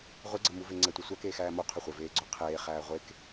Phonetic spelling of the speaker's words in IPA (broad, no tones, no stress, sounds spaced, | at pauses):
ʁʷ e ɡ͡ǀ ɐ m u v e ŋ͡ǀ ɛ tʷ ɐ sʷ æ k eː x æː m o qʰ ʏ χʷ ɘ v eː ɡ͡ǀ ʏ qʰ eː χ æː ʁʷ e k